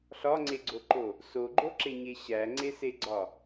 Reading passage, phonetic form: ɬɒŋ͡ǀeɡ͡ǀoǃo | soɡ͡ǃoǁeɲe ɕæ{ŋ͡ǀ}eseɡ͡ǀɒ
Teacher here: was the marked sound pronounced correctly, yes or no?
yes